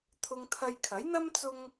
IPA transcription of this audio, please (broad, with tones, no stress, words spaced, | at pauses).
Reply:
t̪ʰʊ˧ŋt̪ʰɐ˧j kʰɐ˨˥jn̪ɐ˥m t͡sʊ˥ŋ